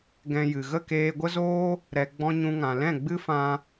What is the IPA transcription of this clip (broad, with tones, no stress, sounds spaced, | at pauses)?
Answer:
ɡ ɛ̃˧ j ɨ˨ ɣ ə˦˨ k eː˧ ɡʷ ə˦ z oː˦ | ɾ ɛ˨ ɡ͡b ɔ̃˧ ɲ ũ˧ ŋ ã˨ l ɛ̃˦˨ ɡ͡b ɨ˦ f ã˧